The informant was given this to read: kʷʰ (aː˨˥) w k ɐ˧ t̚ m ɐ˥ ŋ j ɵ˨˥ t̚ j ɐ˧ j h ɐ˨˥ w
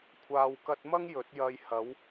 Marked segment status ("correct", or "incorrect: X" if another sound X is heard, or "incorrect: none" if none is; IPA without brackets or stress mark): incorrect: aː˧